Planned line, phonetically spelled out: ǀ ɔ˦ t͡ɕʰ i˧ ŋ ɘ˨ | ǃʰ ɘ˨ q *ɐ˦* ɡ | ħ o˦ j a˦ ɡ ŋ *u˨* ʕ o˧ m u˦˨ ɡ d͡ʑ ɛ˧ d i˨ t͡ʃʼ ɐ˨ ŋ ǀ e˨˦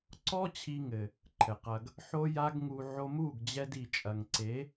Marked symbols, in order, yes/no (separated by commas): no, no